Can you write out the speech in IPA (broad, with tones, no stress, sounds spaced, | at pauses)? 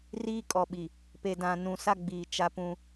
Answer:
r iː˦ kʼ ɔ˨ ɓ i˨ | p e˨ d ã˨ n ũ˨ s a˦ ɡ͡b iː˨ t͡ʃ a˦ p ũ˦